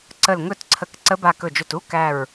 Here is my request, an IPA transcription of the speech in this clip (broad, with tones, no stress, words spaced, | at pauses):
ǀə˧˩lŋɵ˥˩tǀʰə˧˩k ǀə˧˥ba˧˩ kɵ˧˩d͡ʒɵ˧˩tu˧˥˧ kæ˧˩ɹ